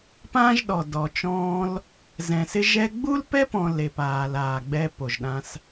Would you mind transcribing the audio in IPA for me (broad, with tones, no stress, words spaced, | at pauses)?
pãː˦ʒɗɔ˨ dɔ˨t͡ʃɔ̃ː˧l | zɛ̃˨sɪ˧ʒɛ˧ ɡ͡bu˦lpɛ˦pɔ̃˨ le˨paː˨l aː˨ɡ͡bɛ˧ po˨ʒɗã˧s